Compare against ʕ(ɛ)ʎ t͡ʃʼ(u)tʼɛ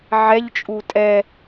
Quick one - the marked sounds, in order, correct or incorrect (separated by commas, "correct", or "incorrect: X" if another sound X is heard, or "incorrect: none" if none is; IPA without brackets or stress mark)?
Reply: correct, correct